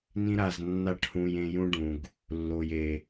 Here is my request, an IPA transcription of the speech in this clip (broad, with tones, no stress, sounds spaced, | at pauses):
n ĩ˧ ɾ a˨ z nː a˧ ʈ h ũ˨ j ẽ˧ j ũ˦ ɖ ũ˨ ɡ | lː o˨ j e˨